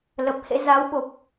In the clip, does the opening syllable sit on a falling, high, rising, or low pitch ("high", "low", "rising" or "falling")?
low